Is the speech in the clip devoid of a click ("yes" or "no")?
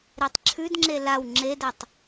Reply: no